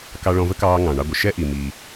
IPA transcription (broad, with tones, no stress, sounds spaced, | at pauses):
k ɑ˧ ɭ ɔ̃˧ v ə˥ k ɑː˧ ŋ ɑ̃˩ ɳ ɑ˧ ɡʷ ə˩ ʃ ɛ˥ ʔ i˩ m iː˩